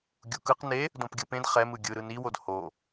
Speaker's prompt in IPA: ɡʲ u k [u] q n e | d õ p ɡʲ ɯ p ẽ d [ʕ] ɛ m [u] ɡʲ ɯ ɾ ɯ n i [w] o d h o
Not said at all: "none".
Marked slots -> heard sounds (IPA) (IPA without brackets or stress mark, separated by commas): ɯ, χ, ɯ, w